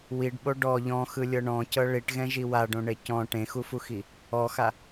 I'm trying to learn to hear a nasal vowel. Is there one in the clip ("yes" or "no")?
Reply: yes